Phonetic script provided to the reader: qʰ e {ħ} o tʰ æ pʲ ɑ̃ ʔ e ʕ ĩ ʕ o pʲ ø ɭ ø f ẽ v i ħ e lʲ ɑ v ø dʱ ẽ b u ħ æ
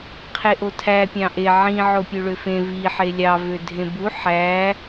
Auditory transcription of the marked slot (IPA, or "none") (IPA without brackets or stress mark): ʔ